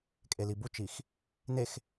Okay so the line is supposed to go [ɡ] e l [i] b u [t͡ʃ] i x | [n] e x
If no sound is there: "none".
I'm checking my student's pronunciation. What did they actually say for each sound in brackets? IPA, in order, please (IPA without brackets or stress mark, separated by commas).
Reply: kʼ, i, t͡ʃ, n